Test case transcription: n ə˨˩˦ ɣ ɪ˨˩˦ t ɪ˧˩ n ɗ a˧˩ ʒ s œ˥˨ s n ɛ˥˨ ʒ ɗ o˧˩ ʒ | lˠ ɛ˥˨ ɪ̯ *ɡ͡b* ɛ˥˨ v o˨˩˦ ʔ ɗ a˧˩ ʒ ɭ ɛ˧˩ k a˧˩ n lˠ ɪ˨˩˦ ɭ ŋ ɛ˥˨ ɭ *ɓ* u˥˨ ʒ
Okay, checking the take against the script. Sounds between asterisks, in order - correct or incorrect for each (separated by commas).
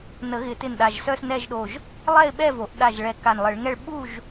incorrect, correct